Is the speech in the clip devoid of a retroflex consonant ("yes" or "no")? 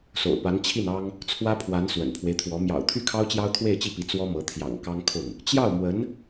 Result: yes